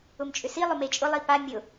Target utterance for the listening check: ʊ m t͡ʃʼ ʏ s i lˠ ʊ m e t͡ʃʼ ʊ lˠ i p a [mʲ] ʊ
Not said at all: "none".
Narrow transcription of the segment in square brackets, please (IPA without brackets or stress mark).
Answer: mʲ